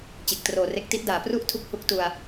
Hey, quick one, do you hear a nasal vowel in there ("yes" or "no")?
no